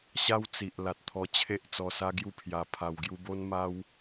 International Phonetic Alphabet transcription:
ɕ a˦ w t͡s i˨ ʔ l a˨ t̚ t̪ʰ ɔ˧ t͡ɕʰ e˦ ʔ t͡s ɔ˧ s a˦ ɡ j u˥˧ pʰ j a˧ pʰ a˧ w ɡ j u˦ b o˦ n m a˦ w

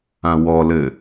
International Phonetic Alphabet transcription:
ã w ɔ l ɘ

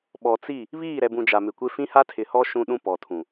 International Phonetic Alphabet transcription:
ɓ ɔ˨ t͡s i˦˨ | β iː˦˨ ɾ ɛ˨ b ũ˨ d͡ʒ a˨ m ɪ˨ kʷ e˦ f ĩ˦ h a˦ tʰ ɪ˨ h ɔ˦ ʃ ũ˦ ɗ ũ˦ p ɔ˨ tʰ ũ˨

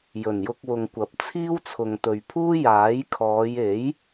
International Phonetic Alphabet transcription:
j ɵ˨˩ n j ʊ˧ k̚ w ʊ˨ ŋ kʷ ɐ˨˥ p̚ t͡sʰ iː˥ w t͡sʰ ʊ˨ ŋ t̪ ɵ˨ ɥ pʰ uː˥ j aː˨˥ j kʰ ɔː˨˧ j e˨˥ j

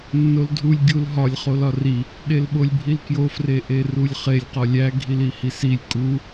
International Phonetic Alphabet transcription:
nː o l dʱ u lʲ ɡʲ u l ɦ ɒ lʲ χ o l ɒ r i | ɗ e l ɓ o lʲ bʱ i l k j o f r e ʔ e r u lʲ χ e lʲ q ɒ lʲ æ ɡʱ i l i h i s i lʲ kʼ u

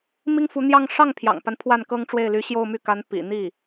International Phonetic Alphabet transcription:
m i˥ ŋ f u˧˥ n̪ j ɑ˥˧ ŋ ʂ ɑ˥˩ ŋ pʰ j ɑ̰˨˩ ŋ p a˦ n pʰ w a˥˩ n k ɤ˥ ŋ ʈ͡ʂ w e˥˩ ɪ̯ l y˧˥ ɕ j o˥˧ ʊ̯ m y˥˩ k a˧˥ n p ḭ˨˩ n̪ i˥˩

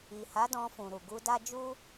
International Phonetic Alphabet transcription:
i˨ h a˨˦ d ɔ̃˧ f ũ˨ ɾ u˨ ɡ u˧ d a˦ d͡ʒ u˦

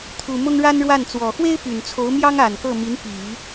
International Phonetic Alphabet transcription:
t̪ʰ u˨˩ m ʊ˥ ŋ ɻ a˥ n ɻ w a˥˩ n t͡s w ɔ˨˩ x w e˥ ɪ̯ p y˨˩ n t͡sʰ o˧˥ ʊ̯ m j ɑ˥ ŋ a˨˩ n k ɤ˥˩ m i˧˥ n p i˨˩˦

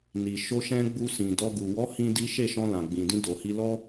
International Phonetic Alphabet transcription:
n i˨ ʃ o˧ ʃ ɛ̃˧ ɡ͡b u˧ s ĩ˨ d ɔ˧ ɡ u˨ w ɔ˨˦ h ĩ˦ d i˦ ʃ e˦˨ ʃ ɔ̃˧ l ã˨ ɡ͡b ĩ˨ d ĩ˧ d o˨ h i˧ l ɔ˦

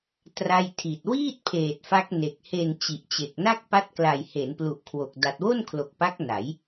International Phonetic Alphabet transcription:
t r a˥˩ j tʰ i˨˩ t̚ w iː˥˩ t̚ pʰ eː˨˩ t̚ f a˦˥ k̚ n e˨˩ k̚ h e˨˩ n t͡ɕ i˨˩ ʔ t͡ɕ e˨˩ k̚ n a˥˩ k̚ p a˦˥ t̚ k l a˨˩ j h e˩˦ n p l u˨˩ ʔ kʰ w o˨˩ k̚ d a˨˩ t̚ w o˥˩ n kʰ l o˨˩ k̚ p a˦˥ k̚ n a˩˦ j

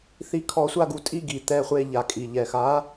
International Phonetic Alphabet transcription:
θ i˧˥ kʰ ɔ˧˥ sʷ a˥˧ ɡ u˥˧ tʼ i˥˧ ɡ i˨˩ t̪ ɛ˥˧ χʷ e˥˧ ʎ a˨˩ kʼ i˨˩ ʎ ɛ˨˩ x a˧˥

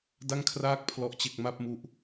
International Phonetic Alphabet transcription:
d a˥˩ ŋ kʰ r aː˥˩ k̚ pʰ l ɔ˥˩ ʔ t͡ɕ e˥˩ k̚ m a˥˩ p̚ m u˦˥ ʔ

